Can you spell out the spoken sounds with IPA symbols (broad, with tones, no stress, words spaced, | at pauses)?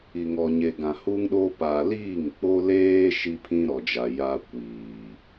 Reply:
i˨ŋɔ˨ɲe˨ɡã˨ hu˦ŋɗo˦ pa˨liː˦˨ŋk͡po˦ leː˦ ʃi˦pʰĩ˦ɾɔ˨d͡ʒa˨ ja˦ kʷiː˨